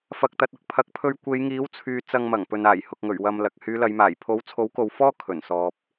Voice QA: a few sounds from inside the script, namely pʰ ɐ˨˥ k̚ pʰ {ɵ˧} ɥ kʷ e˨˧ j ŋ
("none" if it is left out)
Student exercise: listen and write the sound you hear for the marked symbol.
ɵ˧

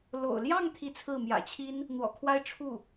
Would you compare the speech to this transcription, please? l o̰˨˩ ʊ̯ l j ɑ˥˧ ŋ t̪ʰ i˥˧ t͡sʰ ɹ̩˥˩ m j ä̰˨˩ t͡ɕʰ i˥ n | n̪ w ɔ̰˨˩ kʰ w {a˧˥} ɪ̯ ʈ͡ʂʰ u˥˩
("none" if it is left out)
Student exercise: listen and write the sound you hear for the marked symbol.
a˥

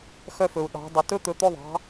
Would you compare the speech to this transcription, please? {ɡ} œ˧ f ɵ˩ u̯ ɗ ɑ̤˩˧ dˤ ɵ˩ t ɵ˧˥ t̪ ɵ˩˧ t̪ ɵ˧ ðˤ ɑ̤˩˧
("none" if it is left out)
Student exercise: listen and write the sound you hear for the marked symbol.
x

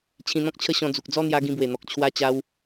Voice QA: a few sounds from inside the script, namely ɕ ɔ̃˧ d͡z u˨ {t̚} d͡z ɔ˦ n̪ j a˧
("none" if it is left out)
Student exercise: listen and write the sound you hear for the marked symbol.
k̚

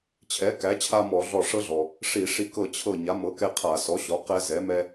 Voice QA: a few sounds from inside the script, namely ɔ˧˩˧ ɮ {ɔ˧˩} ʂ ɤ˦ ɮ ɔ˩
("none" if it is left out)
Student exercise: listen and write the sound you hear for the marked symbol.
ɔ˧˩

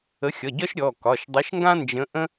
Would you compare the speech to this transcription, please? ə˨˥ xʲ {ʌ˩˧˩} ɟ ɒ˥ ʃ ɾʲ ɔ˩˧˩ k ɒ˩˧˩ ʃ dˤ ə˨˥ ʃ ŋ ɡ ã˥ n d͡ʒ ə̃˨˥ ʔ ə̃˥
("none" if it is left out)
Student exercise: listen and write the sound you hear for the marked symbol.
ʌ˩˧˩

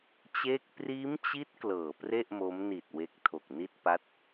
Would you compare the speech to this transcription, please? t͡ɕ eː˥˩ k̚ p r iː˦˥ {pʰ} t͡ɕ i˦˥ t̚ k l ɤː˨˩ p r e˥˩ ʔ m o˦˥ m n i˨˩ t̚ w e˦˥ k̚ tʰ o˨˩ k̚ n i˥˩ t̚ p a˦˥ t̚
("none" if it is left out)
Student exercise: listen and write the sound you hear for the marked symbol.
m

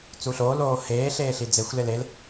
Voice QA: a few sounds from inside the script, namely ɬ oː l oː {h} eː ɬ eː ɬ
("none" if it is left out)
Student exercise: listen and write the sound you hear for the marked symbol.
h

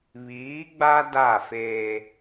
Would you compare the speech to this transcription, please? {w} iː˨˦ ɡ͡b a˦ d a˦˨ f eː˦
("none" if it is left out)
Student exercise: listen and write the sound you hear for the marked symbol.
β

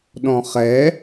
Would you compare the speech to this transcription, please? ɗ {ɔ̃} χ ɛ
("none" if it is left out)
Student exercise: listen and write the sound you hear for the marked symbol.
ɔ̃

